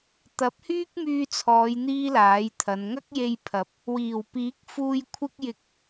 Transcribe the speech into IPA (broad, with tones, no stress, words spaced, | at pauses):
t̪ɐ˨˥p̚hyː˥k̚myː˧t͡sʰɔː˨˧j n̪iː˥laː˨˥jt̪ʰɐ˨˧n ŋɐ˥k̚je˧jpʰɐ˨˥p̚ | wiː˨˩wpiː˨˥k̚fuː˧j kʷʰɪ˥k̚jɪ˧k̚